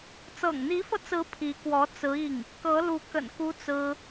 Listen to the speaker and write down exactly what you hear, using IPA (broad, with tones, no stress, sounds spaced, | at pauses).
t͡s ɤ̰˨˩ ŋ n̪ i˧˥ f ɤ˧ t͡s ɹ̩˧˥ pʰ i˧˥ k w ɔ˧˥ t͡s ɹ̩˧˥ i˥˩ ŋ | k ɤ˧˥ l u˧˥ k ə̰˨˩ n k u˥ t͡s ɹ̩˥